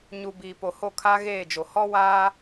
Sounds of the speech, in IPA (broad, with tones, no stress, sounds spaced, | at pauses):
ɲ u˨ b iː˨ p o˨ h o˦˨ kʰ a˦ ɣ eː˦˨ d͡ʒ o˨ h ɔ˦ w aː˦